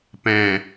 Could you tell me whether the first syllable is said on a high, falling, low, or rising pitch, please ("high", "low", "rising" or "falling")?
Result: low